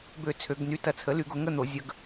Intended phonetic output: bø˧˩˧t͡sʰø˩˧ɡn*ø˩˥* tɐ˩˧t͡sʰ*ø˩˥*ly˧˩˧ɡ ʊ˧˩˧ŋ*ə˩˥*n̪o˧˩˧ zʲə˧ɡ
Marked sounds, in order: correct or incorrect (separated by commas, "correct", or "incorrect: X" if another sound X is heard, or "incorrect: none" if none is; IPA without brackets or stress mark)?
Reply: incorrect: y˩˥, incorrect: ə˩˥, incorrect: ə˥˨